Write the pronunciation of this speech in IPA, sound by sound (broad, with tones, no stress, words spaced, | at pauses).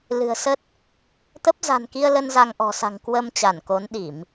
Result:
lɨ̤˨˩ə̯sə˦˥t̚ | t̪ə˦˥p̚ za̤˨˩nki˧ə̯lə˧n za˧ŋʔɔ̤˨˩sa̤˨˩ŋ kwə˧m t͡ɕa˧˩nko˨˦nɗi˧˩˨m